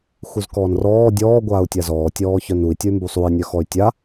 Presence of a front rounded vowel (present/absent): present